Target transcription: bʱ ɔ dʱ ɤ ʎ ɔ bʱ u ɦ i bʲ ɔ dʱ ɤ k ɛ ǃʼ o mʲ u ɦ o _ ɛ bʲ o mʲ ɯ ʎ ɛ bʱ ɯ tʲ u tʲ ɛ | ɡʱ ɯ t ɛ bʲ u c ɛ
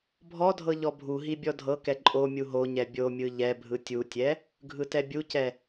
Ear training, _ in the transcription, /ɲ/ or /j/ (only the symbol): ɲ